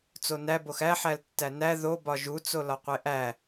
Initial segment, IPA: t͡s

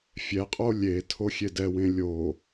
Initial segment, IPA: fʲ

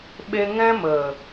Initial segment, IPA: ɓ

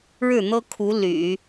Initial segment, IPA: ɻ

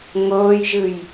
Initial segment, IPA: ŋ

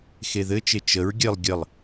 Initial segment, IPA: x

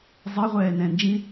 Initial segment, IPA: zˤ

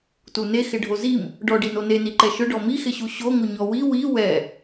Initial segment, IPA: t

